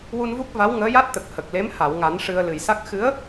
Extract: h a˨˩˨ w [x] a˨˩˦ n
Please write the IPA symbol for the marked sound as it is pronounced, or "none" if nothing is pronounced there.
ŋ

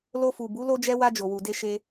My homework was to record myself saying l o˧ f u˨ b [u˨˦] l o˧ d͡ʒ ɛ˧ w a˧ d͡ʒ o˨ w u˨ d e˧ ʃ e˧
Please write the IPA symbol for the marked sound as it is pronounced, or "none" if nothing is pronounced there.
u˨˦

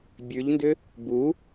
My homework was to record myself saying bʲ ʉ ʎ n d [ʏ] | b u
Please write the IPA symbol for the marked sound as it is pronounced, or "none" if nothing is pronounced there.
ʏ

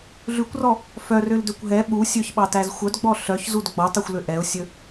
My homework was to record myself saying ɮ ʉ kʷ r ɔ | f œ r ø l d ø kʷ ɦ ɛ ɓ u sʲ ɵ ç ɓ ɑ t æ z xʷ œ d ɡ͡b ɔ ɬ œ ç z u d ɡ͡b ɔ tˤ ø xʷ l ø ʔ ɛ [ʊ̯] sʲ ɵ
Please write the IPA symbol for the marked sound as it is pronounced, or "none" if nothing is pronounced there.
ʊ̯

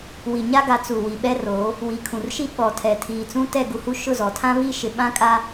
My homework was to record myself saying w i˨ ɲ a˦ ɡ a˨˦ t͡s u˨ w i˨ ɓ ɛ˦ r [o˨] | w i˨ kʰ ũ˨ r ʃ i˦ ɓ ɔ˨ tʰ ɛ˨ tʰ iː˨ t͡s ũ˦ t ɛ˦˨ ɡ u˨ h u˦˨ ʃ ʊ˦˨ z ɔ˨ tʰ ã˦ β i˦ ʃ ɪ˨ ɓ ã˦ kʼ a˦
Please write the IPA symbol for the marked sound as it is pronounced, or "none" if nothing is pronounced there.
o˨˦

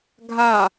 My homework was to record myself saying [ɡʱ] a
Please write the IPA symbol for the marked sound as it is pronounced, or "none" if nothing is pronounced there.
ɡʱ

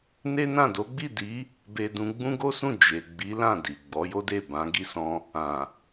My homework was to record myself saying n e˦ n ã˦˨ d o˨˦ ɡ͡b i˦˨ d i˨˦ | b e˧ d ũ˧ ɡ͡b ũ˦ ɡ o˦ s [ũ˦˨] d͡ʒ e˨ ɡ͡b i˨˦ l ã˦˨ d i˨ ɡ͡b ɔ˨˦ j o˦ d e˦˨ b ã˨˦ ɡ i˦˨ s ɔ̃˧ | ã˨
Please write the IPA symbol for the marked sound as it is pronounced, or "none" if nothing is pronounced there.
ũ˦˨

